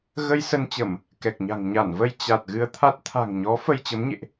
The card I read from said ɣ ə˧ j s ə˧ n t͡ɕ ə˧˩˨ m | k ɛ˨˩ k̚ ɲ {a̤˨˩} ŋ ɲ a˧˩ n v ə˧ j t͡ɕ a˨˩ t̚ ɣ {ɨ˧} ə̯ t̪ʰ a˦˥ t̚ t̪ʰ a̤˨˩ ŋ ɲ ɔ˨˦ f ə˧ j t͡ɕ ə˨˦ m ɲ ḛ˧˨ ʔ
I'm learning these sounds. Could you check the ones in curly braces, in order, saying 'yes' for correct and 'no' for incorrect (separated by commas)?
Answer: yes, yes